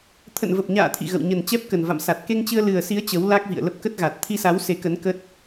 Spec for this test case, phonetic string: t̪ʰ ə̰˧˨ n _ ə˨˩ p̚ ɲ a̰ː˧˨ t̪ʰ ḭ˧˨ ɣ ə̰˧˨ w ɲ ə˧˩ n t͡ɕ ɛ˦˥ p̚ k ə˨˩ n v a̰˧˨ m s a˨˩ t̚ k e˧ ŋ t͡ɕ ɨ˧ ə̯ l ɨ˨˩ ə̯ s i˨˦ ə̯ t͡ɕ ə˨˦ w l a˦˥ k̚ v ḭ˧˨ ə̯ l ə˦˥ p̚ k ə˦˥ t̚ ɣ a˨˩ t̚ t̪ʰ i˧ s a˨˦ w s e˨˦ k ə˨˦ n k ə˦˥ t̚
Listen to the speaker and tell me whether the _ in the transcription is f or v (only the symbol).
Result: v